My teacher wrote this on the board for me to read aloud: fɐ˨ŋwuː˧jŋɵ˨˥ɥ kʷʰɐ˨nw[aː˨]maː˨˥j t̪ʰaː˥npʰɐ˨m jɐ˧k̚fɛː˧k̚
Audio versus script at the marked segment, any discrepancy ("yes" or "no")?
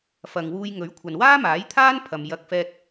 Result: yes